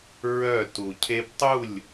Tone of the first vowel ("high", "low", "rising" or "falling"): falling